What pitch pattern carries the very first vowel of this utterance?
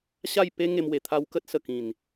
falling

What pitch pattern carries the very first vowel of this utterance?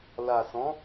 low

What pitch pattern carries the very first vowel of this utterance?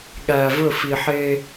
low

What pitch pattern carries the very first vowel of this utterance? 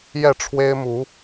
falling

